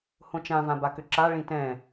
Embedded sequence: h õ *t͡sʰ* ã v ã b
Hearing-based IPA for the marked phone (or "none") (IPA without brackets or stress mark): t͡ʃ